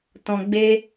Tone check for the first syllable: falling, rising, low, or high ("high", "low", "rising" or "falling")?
low